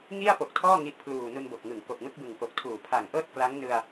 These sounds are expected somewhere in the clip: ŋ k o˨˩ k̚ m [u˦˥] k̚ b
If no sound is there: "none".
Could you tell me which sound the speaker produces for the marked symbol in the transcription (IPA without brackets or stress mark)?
ɯ˦˥